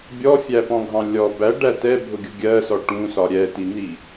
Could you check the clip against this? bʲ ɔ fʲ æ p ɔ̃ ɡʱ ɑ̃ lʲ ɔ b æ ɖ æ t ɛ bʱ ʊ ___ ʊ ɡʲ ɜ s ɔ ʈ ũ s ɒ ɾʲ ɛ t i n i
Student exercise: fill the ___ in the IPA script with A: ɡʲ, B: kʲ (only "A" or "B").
A